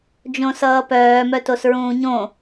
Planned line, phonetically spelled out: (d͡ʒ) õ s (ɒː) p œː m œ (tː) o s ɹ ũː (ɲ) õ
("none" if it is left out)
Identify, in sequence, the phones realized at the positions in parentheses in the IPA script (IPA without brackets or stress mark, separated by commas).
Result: d͡ʒ, ʌː, t, ɲ